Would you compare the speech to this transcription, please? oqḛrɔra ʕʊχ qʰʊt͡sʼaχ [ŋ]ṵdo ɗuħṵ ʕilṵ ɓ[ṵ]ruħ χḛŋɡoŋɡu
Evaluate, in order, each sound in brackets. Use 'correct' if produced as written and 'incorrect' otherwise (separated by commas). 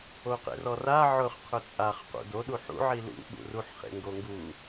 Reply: incorrect, correct